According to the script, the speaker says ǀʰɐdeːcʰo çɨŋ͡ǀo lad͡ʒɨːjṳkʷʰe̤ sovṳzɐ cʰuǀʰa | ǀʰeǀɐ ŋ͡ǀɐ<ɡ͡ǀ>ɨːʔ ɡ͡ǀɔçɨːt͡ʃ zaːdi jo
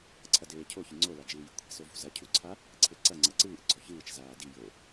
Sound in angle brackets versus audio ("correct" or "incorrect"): incorrect